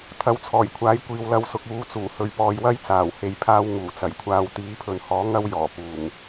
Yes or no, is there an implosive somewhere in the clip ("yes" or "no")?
no